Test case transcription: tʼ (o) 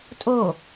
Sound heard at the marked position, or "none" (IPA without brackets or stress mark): o